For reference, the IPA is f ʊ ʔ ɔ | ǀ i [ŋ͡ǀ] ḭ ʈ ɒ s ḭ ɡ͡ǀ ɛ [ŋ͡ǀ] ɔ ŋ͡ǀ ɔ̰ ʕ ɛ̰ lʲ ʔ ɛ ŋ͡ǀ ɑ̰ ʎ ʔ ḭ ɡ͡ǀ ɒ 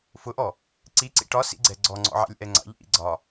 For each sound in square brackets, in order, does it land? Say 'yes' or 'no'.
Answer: no, no

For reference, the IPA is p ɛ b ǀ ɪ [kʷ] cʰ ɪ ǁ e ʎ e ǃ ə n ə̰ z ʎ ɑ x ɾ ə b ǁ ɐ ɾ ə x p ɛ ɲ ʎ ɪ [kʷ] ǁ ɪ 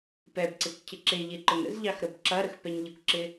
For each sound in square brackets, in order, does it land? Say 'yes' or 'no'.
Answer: yes, yes

